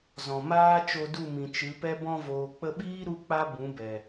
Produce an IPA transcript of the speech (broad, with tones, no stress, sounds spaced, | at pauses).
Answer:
z ɔ̃˨ m aː˦ t͡ʃ o˧ d u˦˨ m ĩ˨ t͡ʃ ɨ˨˦ p ɛ˦ b ɔ̃˧ v oː˨ k͡p ə˧ ɓ iː˦ ɾ u˦ k͡p a˦ b ũ˨˦ b ɛ˨